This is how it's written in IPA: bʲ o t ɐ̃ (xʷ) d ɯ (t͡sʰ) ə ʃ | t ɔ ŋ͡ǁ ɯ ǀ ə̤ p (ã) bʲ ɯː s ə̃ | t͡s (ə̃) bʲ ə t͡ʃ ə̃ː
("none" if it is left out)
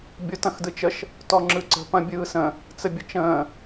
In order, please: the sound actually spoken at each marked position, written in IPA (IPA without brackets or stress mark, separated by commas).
x, t͡ʃ, ɐ̃, ə